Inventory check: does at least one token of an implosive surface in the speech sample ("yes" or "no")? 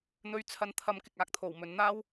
no